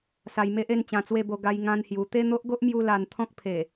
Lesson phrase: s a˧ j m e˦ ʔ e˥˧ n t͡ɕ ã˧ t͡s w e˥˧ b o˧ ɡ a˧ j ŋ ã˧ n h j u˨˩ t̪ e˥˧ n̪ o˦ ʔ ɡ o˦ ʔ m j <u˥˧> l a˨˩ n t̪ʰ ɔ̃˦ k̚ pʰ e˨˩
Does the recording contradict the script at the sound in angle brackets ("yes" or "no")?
yes